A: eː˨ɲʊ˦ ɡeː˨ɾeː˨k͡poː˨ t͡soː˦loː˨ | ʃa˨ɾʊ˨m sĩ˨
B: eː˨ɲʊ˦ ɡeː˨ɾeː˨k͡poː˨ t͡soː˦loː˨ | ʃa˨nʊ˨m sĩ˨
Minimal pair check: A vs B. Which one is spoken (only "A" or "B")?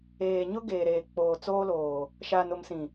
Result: B